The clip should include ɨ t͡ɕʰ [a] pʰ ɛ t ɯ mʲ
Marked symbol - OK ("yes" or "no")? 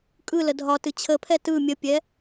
no